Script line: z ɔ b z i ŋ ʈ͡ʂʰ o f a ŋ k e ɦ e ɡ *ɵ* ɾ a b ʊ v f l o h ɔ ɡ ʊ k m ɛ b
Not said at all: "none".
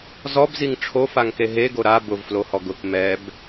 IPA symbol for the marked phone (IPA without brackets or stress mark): o